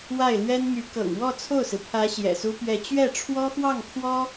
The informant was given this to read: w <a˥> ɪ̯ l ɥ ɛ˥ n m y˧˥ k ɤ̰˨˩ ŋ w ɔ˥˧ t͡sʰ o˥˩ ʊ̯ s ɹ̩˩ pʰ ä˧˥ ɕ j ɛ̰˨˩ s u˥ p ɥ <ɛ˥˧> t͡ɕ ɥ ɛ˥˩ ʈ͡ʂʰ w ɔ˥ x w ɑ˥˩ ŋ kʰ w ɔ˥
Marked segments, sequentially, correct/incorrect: incorrect: a˥˩, correct

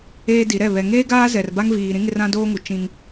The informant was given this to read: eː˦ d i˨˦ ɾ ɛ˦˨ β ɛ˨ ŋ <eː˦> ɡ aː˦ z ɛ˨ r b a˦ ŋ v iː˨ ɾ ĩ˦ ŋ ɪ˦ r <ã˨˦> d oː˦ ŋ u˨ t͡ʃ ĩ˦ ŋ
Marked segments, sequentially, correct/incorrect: correct, incorrect: ã˦

